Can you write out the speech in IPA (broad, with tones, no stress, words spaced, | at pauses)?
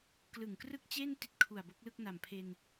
klɯ˨˩ŋkrɯ˥˩k̚t͡ɕe˥˩n ti˥˩t̚kʰu˨˩a̯bo˦˥k̚lɯ˥˩k̚ na˨˩mpʰe˧n